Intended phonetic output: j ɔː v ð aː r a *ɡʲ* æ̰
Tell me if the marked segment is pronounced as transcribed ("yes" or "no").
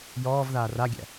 yes